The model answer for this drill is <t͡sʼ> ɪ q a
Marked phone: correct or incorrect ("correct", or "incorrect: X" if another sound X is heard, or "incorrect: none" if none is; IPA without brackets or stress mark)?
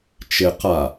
incorrect: t͡ʃ